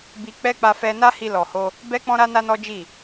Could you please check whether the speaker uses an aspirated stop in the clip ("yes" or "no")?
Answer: no